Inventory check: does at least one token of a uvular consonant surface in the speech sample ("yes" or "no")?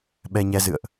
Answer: no